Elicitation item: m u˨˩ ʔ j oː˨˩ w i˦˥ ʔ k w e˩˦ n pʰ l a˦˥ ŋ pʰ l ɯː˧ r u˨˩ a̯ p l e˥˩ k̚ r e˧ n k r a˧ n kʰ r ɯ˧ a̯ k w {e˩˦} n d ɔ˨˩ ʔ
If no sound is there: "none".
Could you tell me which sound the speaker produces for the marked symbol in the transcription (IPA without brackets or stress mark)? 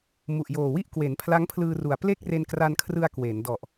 eː˩˦